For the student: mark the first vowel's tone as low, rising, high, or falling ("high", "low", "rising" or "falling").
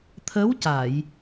rising